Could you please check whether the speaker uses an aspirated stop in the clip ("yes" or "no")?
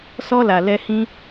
no